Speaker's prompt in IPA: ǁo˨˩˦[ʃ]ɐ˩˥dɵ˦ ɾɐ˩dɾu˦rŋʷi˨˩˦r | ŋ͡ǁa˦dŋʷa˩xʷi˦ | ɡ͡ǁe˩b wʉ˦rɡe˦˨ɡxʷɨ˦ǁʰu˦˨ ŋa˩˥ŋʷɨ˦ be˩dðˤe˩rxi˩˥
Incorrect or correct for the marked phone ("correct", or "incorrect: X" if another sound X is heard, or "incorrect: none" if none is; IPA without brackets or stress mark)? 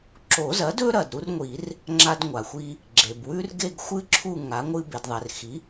incorrect: z